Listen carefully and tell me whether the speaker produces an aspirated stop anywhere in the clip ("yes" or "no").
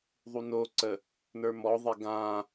no